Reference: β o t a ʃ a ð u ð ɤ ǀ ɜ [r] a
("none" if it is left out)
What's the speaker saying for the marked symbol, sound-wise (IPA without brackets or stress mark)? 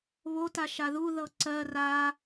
r